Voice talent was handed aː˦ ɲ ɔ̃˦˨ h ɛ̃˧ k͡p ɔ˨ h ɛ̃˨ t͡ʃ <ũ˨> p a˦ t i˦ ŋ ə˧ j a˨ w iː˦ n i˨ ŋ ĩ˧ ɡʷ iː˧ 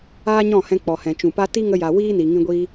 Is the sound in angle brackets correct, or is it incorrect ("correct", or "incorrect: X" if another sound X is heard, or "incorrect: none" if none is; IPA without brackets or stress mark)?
correct